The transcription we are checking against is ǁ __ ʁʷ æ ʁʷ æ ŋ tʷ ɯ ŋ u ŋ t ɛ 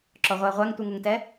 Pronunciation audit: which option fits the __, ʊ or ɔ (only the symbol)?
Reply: ɔ